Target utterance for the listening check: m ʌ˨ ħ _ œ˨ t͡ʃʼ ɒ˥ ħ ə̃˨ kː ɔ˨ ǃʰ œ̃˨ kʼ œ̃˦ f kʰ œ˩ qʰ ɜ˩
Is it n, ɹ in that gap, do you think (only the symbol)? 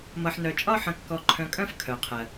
n